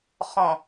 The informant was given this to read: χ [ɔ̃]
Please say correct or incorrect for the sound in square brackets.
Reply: correct